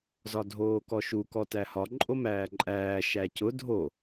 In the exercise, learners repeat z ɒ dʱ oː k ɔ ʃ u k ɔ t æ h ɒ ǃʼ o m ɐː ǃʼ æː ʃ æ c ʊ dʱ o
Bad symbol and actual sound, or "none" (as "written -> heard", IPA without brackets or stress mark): ɐː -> æː